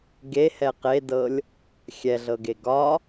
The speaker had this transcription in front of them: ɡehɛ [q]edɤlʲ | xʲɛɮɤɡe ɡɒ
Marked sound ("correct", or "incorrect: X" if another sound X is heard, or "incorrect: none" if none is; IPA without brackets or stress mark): correct